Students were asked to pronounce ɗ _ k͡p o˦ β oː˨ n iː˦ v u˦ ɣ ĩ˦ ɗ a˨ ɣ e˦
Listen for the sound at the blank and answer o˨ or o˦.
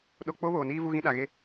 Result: o˦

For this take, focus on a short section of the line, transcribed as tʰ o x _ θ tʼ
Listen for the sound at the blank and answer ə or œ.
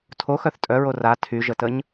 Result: œ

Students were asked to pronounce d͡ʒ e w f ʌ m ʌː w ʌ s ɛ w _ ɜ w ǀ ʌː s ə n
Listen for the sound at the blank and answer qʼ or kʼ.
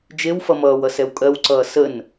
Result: kʼ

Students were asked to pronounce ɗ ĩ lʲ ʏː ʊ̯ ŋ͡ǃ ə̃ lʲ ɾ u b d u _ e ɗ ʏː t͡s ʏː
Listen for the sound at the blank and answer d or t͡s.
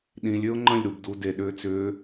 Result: d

